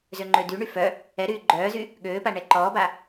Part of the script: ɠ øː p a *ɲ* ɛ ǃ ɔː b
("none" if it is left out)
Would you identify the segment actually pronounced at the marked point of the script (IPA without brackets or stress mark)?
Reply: ɳ